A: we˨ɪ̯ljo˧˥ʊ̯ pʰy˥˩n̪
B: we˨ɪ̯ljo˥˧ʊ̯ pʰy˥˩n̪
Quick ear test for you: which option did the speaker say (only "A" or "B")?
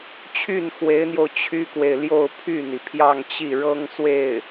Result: B